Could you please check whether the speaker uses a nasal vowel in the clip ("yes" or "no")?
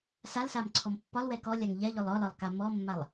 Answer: no